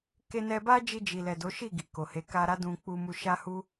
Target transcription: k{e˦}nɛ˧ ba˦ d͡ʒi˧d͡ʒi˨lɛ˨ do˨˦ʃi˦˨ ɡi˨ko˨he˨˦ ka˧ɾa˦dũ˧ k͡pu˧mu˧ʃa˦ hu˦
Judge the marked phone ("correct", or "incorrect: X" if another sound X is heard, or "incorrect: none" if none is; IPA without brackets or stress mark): incorrect: e˧